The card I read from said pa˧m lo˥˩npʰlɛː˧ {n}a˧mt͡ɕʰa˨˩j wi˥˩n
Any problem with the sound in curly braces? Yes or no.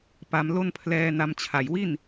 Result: no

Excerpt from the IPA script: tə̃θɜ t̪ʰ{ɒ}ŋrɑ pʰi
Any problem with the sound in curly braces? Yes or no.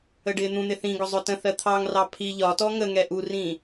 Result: yes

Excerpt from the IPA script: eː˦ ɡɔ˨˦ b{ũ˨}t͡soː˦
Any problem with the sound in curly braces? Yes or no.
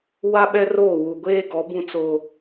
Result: yes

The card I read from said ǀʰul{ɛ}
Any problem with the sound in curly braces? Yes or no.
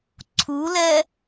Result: no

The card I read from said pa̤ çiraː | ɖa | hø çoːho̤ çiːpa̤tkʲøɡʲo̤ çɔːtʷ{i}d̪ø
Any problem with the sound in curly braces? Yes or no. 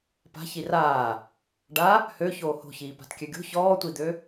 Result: no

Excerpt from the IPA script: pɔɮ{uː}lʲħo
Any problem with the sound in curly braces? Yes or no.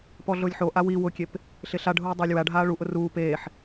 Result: yes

